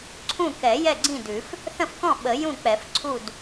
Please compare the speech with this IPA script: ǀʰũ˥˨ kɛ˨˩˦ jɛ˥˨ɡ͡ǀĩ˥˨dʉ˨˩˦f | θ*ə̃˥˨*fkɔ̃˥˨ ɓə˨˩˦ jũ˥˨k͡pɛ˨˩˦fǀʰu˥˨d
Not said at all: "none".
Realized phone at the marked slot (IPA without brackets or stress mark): ə̃˥˨